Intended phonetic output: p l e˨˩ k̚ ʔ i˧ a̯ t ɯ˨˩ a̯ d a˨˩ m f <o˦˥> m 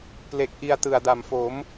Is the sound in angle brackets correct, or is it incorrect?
incorrect